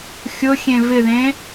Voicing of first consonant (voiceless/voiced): voiceless